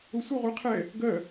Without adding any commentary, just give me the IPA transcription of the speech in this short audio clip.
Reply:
ʊ sʷ ə ʁʷ ɪ qʰ ɛ | ɡ ɜ

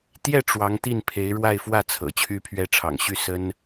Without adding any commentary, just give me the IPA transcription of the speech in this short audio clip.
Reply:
t̪ j ɛ˥˩ ʈ͡ʂ w ɑ˧˥ ŋ t̪ i˥˩ n pʰ e˧˥ ɪ̯ ɻ w a˥˧ ɪ̯ f w ä˥˩ t͡sʰ ɤ̰˨˩ t͡ɕʰ y˥ pʰ ɥ ɛ˥ ʈ͡ʂʰ ɑ̰˨˩ ŋ ɕ y˥˩ s ə˥ n

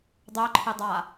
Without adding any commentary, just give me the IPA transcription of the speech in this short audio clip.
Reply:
dˤ œ ǃʰ e dˤ a

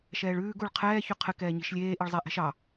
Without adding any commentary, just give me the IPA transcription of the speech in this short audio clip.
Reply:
ʃ ɛː ɭ ʉː ɡ u ɭ qʰ ɛː ç ʉ qʰ ɘ k ɛː ɲ i̤ ʃ lʲ eː ʔ i ɭ zˤ e ʔ ɛ̤ ʃ ɑ

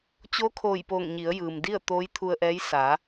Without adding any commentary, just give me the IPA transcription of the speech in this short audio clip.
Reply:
t͡ɕ oː˧˥ kʰ oː˧˩ j p oː˧˩ ŋ ɲ i˩˧ ə̯ j ɯː˩ m d i˥˨ ə̯ t̪ oː˧˥ j t̪ʰ u˧ ə̯ ʔ ɛː˧˥ j s a˩˧

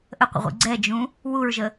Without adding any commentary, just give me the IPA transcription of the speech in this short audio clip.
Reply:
ʔ ə qʷ ə̰ ʁʷ ḭ ɡ͡ǀ ɛ d͡ʒ ũ | w u ɹ ʒ ə

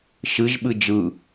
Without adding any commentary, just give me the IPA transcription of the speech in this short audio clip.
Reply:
ʃ ɨ ʒ ɓ ɨ d͡ʒ ɯ

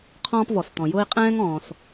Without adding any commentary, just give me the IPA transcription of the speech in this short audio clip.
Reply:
qʰ ɔ̃ː˥ p v ɔ˩ s t̪ ɔ̃˩ j ʊː˥ i̯ qʼ ɛ̃ː˥ ŋ ɔ̃ː˩ s

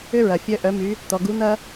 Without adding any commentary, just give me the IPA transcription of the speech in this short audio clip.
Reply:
ʏ˥ ɹ ɐ˩ fʲ œ˧˥ ʔ œ˩˧ m y˩˧ | t̪ ɔ˩ ɡ u˧˥ n̪ ɐ˥

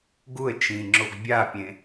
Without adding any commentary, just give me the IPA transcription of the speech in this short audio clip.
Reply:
ɡ u ə̯ t͡ʃ ĩ ŋ͡ǁ o ɡ bʲ a pʲ ẽ

